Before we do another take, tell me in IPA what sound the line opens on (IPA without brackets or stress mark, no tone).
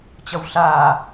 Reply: t͡ɕ